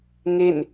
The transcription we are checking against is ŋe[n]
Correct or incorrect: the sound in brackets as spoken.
correct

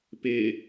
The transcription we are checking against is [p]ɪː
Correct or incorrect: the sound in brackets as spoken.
correct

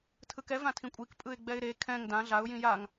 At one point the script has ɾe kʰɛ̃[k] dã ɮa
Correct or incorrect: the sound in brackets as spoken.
incorrect: ŋ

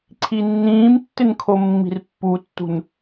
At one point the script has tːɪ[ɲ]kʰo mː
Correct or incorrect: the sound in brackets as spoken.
incorrect: n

